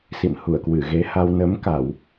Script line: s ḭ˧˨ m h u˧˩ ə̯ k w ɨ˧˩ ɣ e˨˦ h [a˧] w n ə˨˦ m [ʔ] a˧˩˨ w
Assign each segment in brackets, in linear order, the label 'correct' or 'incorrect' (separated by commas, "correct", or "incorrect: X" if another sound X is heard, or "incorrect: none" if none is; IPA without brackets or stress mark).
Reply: correct, incorrect: k